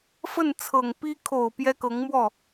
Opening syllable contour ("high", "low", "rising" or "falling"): falling